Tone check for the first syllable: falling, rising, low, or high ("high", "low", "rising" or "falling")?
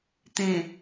low